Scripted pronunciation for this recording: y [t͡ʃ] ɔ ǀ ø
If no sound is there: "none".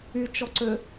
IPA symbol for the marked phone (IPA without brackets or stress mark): t͡ʃ